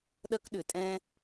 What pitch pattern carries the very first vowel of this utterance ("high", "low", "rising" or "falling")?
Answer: high